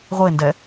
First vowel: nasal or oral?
oral